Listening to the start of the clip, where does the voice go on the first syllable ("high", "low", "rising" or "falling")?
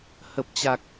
low